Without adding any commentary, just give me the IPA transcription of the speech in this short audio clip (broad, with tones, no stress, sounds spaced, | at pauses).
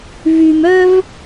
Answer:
v y˧ m œ˥ v